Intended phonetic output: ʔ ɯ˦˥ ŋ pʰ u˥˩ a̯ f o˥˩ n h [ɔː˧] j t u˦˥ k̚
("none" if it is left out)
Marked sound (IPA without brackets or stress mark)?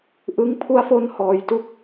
ɔː˧